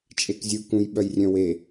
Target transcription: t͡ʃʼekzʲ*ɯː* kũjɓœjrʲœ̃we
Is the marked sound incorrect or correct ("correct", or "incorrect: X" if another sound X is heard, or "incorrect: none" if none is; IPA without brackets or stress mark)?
incorrect: ɯ